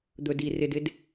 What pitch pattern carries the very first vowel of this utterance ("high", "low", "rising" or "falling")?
low